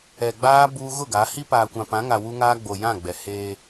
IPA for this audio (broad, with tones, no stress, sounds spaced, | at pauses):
ɛ˨ ɡ͡b aː˦ b uː˦ ɣ ʊ˦˨ ɡ a˨˦ h i˦ p aː˨ kʷ ã˨ p ã˨˦ ŋ a˨ w u˦ ŋ aː˦ ɡ͡b o˨ j ã˦˨ ɡ͡b ɛ˨ h eː˦